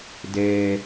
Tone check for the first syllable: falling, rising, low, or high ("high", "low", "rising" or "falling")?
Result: low